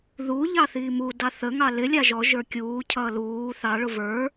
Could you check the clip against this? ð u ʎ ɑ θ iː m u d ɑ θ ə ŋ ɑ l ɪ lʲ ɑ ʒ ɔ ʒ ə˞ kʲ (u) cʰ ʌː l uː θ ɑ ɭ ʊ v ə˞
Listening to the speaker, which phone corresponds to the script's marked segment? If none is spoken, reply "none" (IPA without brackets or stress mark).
uː